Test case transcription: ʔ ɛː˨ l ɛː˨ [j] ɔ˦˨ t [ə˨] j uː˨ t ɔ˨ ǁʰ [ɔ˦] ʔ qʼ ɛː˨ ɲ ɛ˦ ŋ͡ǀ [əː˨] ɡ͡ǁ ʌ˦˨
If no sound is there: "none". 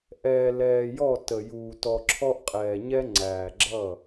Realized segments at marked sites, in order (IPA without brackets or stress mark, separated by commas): j, ə˨, ɔ˦, æː˨